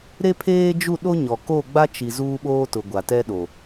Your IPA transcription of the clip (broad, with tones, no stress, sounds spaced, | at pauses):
ɾ e˦ pʰ eː˦ d͡ʒ u˦˨ ɗ o˦ ɲ ɔ˨ k o˦˨ ɡ͡b a˦ t͡ʃ i˨ z uː˦ ɓ oː˦ t ʊ˨ ɡʷ a˨ t ɛ˦ ɗ o˨